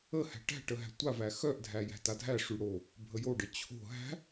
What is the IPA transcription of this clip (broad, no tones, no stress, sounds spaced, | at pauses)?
ə h æ̤ ʈ æ̤ ʈ ə ɦ æ̤ tʷ a v æ x œ ʔ dʱ æ j æ̤ t a dʱ æ ʂ y ɽ o | bʱ ə j o ɖ ə t͡ɕʰ o̤ ɦ æ̤